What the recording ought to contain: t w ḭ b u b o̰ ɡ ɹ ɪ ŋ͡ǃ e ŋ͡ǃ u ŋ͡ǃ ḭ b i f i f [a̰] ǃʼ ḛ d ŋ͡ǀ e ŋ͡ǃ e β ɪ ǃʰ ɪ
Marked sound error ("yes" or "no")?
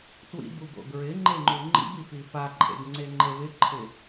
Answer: yes